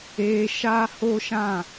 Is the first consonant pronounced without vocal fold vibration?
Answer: yes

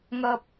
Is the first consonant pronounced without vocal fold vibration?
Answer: no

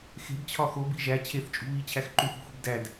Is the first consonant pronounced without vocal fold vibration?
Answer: yes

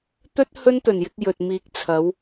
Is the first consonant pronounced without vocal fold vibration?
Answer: yes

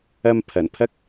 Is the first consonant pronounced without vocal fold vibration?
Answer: no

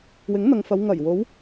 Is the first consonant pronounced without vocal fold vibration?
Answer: no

